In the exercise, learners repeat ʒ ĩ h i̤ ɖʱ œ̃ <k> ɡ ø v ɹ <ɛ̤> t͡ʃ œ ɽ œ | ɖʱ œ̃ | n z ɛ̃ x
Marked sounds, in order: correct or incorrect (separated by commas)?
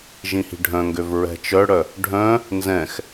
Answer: incorrect, correct